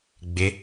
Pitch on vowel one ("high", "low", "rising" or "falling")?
rising